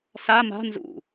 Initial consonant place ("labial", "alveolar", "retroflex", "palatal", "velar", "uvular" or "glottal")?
alveolar